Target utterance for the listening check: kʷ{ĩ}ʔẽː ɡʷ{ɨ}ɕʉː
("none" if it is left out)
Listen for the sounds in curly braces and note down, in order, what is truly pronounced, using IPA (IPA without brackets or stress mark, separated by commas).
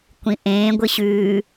ĩ, ɨ